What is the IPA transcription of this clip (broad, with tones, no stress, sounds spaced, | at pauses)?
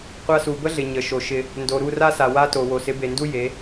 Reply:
qʷ a˧ s u˨ b ə˦ ɮ ɪ˨ ɲ ə˨ ʃ o˨ ʃ ɪ˧ | n d o˨ ɾ u˦˨ r a˦ s a˨ w a˦ t o˨ w o˨ s ɪ˨˦ b e˨ n d u˦ j e˨˦